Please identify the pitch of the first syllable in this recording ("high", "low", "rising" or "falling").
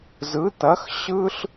rising